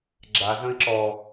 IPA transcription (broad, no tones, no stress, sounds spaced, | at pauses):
ɡ͡ǁ a z ə̃ i̯ ǁ ɔ